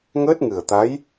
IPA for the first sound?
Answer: ŋ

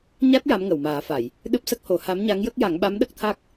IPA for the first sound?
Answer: ɲ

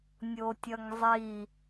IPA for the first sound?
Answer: nʲ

